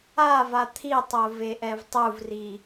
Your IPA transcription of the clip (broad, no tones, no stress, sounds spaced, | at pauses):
a v a t̪ʰ i tˤ o v e ʔ ɛ v tˤ u v r i